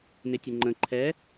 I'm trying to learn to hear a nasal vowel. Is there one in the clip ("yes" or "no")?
yes